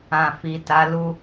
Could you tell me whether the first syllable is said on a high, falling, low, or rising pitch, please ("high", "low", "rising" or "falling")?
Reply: low